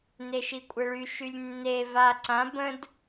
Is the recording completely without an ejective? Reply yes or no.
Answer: no